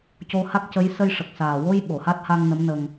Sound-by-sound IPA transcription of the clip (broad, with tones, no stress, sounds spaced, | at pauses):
c o˧ h a˦˥ k̚ c ə˧˥ j s ə˧ j ʂ ə˨˩ k̚ s aː˨˩ w o˧ j ɓ o˨˩˨ h a˦˥ t̚ h a˧ ŋ n ə˧˥ m n ə˧ ŋ